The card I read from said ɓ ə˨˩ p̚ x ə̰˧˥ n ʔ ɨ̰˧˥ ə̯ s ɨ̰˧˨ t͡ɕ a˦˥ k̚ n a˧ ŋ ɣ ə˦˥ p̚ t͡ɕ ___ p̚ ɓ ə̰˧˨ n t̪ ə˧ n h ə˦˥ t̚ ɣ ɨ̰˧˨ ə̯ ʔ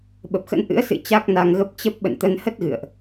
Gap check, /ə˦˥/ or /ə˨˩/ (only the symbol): ə˦˥